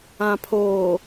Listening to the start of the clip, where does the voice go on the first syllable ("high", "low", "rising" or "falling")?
low